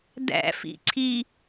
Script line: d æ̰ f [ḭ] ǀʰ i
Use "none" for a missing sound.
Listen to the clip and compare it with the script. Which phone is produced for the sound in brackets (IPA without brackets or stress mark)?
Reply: ḭ